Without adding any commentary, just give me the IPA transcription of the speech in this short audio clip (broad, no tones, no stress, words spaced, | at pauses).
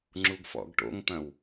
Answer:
ŋ͡ǁuɡfɔ̰ɡʈo̰ŋt̪ɐ̃w